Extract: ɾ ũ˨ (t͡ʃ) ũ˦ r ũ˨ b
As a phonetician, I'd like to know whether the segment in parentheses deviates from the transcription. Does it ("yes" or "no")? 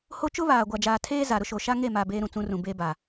yes